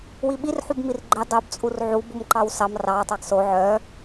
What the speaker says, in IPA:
w i ɓ i r ħ u b m i r ɡ͡ǃ e dˤ o b t͡sʼ u r ʕ u b u m ǃ ɑ w s ɑ m r ɑ tˤ ɑ ɡ s o ʕ œ

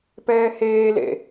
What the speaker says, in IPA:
p ɛː h eː l ḛ

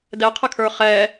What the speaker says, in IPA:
d ɛ qʰ ə kʰ ə˞ χ ɛ

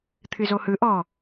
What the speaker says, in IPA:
t̪ʰ ɨ z o h ɯ ʔ ɔ

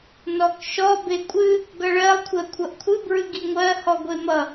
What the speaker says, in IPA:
n ɔ k ʃ ɔ b e kʷʼ ɨ | ɡ ʌ ɭ ɜ lˠ kʷʰ ɜ kʷʰ ʌ ʔ kʷʰ ɨ b ɹ ɨ ɡ i ŋʷ ɜ h ɔ ɡʷ e m ʌ

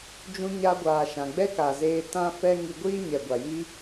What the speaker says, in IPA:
d͡ʒ ũ˧ ɲ a˧ ɡʷ aː˨ ʃ ã˨ ɡ͡b ɛ˦ k a˨ z eː˧ t ã˦ f ɛ˦ ŋ i˧ ɡʷ iː˦ ɲ ɛ˨ ɡʷ a˨ j i˦

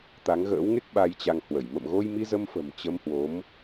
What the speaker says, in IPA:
t̪ a˨˦ ŋ ɣ ə̰ː˧˥ w ŋ e˦˥ k̚ ɓ a˧ j t͡ɕ a˧ ŋ h w ə˧˩ j m ə̰˧˨ m ɣ o˧ j m i˧ z ə˧ m f ə̤˨˩ m t͡ɕ ə˧ m h w o˨˦ m

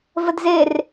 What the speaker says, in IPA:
v ə d z e r

